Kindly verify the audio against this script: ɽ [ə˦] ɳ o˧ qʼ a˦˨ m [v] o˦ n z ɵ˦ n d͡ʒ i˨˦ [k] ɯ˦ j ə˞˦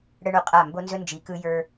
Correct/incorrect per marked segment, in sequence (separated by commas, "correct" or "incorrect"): correct, incorrect, correct